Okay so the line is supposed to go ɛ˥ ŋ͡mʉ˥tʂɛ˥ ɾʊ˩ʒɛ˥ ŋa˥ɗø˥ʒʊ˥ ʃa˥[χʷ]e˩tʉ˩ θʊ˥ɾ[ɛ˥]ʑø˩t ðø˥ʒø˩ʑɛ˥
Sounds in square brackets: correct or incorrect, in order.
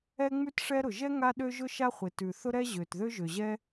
correct, correct

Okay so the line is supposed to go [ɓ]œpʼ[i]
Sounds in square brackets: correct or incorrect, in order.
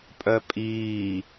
incorrect, incorrect

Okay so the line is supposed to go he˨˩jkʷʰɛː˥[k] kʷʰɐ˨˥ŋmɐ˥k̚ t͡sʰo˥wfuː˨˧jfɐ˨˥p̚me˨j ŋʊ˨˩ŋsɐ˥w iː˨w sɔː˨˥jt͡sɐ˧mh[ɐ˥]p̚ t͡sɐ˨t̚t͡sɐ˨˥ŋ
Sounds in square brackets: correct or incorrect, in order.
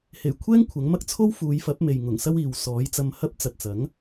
incorrect, correct

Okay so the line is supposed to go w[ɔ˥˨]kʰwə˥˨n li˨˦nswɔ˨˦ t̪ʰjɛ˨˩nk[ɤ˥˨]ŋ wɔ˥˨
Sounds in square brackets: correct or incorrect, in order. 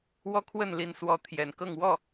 incorrect, correct

